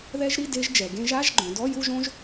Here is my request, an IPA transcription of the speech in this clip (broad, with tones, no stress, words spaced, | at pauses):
ðɛ˦˥ʒɾi˧˥˧ de˦˥ʒd͡ʒɛ˩˧ɡẽ˦˥ʒ a˧˥˧ʒ ɡ͡ǃõ˩˧dɔ˧˥˧ ju˥˧ʒõ˦˥ʒ